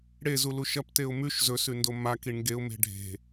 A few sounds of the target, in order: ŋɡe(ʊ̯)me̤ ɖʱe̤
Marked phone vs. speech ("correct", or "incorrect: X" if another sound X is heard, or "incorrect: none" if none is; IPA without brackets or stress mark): correct